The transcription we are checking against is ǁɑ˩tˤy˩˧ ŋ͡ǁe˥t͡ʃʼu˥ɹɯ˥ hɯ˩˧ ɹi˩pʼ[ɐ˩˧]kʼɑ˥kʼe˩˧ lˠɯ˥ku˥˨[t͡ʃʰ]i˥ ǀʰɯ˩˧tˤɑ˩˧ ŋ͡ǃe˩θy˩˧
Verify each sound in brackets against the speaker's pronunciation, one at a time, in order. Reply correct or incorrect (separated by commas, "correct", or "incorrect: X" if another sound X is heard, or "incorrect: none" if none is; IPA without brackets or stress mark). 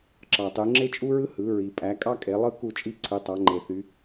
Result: incorrect: æ˩˧, incorrect: t͡ʃʼ